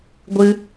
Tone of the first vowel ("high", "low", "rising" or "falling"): high